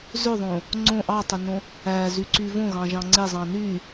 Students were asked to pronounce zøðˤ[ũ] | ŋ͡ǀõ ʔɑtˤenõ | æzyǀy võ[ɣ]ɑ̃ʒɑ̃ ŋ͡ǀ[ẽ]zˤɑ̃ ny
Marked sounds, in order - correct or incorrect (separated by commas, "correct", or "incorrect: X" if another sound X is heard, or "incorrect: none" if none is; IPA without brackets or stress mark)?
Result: incorrect: õ, correct, incorrect: e